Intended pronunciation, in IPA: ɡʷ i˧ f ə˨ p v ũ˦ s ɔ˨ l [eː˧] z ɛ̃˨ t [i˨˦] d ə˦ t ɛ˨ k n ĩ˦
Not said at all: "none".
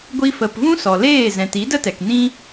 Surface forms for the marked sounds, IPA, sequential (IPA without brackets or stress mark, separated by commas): eː˦˨, i˨˦